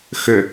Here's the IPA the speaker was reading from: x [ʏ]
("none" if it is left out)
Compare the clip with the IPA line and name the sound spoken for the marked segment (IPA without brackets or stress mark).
ʏ